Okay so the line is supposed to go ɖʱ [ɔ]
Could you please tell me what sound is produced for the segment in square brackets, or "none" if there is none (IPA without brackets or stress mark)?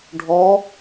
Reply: ɔ